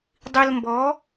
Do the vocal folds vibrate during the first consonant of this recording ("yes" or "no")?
yes